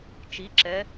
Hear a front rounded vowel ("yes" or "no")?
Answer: no